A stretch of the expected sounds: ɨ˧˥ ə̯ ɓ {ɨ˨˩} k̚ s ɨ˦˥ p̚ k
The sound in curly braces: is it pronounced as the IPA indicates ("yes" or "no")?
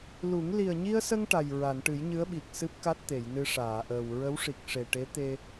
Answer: no